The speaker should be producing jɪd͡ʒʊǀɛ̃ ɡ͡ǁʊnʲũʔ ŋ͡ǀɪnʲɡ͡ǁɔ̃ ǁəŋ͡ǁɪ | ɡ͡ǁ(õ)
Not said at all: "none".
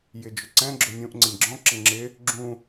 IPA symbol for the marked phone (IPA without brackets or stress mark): ũ